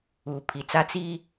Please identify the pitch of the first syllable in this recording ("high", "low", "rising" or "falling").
low